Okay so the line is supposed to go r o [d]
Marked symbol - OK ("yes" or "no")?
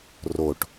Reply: no